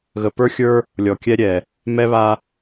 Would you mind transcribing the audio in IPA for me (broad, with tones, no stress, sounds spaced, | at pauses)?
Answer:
ɣ ə˨ p ə˞˦ xʲ ə˞˦ | lʲ ɔ˨ kʲ ɛ˦ ɾʲ ɛ˨ | m ɛ˦ β a˦